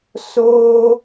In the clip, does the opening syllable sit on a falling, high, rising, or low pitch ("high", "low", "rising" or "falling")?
high